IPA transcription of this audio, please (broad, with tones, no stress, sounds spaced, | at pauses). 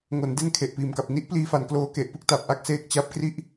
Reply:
ŋ o˩˦ n d e˥˩ n kʰ e˨˩ ʔ p iː˨˩ m k a˨˩ p̚ n i˥˩ ʔ p l iː˧ f a˨˩ n k l oː˧ k e˨˩ ʔ p ɯ˥˩ k̚ t a˨˩ p̚ ʔ a˥˩ k̚ s eː˥˩ k̚ t͡ɕ a˦˥ p̚ k r i˥˩ ʔ